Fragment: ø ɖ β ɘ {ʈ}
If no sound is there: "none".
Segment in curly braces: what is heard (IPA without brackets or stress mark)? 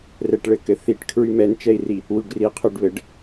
ɖ